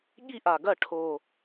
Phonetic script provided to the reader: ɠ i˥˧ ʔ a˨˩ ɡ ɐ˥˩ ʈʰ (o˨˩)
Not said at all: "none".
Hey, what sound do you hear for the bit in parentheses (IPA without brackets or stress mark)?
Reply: o˨˩